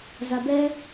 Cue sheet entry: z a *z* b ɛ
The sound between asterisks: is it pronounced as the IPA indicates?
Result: no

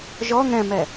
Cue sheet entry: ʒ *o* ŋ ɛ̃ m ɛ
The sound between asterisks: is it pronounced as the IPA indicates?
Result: no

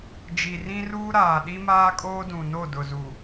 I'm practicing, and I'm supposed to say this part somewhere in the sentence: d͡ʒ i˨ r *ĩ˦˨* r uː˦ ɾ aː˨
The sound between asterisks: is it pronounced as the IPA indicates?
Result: no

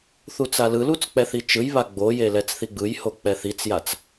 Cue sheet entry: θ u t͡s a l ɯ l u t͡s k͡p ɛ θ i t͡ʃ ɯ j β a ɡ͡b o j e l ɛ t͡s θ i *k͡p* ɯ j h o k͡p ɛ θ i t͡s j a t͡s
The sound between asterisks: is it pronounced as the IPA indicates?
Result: no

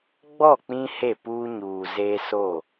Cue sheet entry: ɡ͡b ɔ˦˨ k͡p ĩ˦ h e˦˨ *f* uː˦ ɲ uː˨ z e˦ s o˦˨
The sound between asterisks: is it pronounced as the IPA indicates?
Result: no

